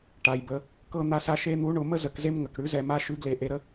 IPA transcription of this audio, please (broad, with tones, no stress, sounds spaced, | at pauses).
ʈ a˩ j b ə˩ | k ɤ˥˨ n̪ a˦ s a˦ ʃ e˦ n̪ u˨˥ ɳ ʊ˩˧ m ə˥˨ z ə˩˧ k z e˦ m ŋ ə˩ k ɽ ʉ˨˥ z ɛ˩˧ m a˦ ʃ ʉ˨˥ ɡ l e˩˧ ʔ e˩˧ ɾ ə˦